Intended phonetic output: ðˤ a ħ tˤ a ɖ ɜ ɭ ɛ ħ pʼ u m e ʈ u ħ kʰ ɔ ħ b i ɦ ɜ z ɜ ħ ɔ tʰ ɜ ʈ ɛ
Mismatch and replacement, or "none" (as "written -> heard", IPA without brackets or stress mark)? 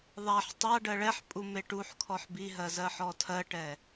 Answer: none